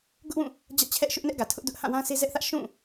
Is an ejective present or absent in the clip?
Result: absent